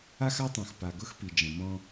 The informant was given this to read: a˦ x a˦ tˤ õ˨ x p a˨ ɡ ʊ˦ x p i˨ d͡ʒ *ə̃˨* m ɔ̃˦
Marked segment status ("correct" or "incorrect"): correct